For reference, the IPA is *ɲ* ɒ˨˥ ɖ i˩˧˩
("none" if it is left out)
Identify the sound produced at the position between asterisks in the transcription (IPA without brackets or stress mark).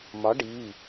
m